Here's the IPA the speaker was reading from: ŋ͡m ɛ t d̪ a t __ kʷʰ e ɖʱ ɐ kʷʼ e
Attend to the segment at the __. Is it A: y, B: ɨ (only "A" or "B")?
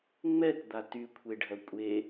A